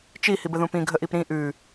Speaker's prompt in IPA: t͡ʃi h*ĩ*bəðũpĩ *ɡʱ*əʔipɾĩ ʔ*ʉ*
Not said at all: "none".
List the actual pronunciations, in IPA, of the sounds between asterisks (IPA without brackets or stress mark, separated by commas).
i, ɡʱ, ʉ